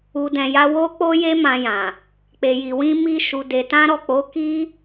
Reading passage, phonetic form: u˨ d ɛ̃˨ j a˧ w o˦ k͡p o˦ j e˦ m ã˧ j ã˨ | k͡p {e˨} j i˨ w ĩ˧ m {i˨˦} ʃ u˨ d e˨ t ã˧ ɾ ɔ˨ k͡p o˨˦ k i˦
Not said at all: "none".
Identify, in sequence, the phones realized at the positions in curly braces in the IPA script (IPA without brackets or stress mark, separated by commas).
e˨, i˧